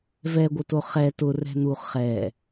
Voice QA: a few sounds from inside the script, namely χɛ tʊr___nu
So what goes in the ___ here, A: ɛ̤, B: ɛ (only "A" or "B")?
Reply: A